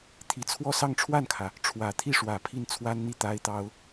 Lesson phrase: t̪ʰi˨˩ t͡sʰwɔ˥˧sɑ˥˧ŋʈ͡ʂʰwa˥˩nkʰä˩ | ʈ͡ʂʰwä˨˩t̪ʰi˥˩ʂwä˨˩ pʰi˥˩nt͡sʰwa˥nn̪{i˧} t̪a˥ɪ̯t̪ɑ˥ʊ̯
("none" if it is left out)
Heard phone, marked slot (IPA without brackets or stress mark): i˥˩